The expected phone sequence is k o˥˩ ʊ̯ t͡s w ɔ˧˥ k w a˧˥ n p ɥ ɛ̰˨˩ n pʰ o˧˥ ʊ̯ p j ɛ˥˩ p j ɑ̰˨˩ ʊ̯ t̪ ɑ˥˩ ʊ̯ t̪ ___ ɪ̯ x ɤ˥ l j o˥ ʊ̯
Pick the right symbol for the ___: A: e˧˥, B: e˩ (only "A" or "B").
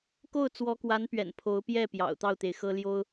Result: B